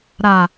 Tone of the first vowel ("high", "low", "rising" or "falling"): low